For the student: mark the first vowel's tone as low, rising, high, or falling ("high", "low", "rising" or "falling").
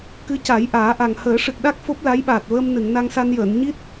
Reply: rising